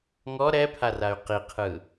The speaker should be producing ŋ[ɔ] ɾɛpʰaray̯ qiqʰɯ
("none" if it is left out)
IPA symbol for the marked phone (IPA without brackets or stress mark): ɔ